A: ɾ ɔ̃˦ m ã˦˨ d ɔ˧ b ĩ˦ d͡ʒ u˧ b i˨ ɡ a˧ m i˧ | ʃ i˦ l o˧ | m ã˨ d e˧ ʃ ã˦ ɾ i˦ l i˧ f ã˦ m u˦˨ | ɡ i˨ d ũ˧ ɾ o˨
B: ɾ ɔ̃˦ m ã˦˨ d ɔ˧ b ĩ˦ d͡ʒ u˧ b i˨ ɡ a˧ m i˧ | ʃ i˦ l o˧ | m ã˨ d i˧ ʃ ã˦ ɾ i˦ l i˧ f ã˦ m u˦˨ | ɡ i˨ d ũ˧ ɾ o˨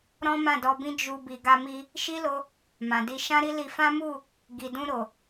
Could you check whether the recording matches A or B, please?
B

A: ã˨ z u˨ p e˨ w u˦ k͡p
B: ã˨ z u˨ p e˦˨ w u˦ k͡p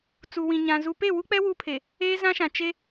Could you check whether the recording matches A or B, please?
B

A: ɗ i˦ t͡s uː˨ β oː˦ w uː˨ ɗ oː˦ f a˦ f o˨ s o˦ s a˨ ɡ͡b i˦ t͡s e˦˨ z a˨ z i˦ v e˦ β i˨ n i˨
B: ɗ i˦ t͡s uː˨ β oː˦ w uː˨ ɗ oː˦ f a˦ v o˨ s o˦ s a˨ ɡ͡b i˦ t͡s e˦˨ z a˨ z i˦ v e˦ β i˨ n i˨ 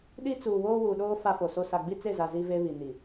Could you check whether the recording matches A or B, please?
A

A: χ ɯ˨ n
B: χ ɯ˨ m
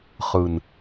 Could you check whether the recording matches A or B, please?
A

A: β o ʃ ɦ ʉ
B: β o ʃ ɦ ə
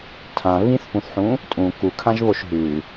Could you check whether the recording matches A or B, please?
A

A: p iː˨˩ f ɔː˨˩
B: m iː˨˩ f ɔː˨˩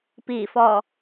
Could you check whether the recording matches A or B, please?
A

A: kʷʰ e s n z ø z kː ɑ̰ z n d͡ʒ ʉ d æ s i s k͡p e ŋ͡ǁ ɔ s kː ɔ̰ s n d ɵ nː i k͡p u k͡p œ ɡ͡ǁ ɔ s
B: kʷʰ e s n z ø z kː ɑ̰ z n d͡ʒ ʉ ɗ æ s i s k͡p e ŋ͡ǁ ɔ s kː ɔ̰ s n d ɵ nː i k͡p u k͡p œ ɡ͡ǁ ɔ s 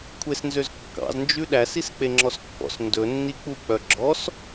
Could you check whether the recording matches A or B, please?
B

